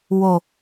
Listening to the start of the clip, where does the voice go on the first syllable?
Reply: low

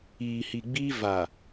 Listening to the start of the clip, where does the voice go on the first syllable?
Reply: low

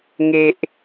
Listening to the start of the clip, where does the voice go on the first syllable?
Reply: low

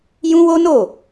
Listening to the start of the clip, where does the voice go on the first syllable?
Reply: high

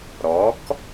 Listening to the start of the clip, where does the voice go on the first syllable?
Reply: rising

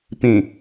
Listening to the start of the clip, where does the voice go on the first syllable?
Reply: low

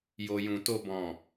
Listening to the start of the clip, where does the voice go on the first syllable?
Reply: low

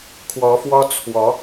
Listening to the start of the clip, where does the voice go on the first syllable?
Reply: rising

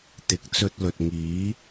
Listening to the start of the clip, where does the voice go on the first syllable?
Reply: rising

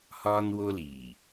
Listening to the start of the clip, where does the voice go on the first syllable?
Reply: high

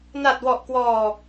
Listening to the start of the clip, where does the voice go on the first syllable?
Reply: low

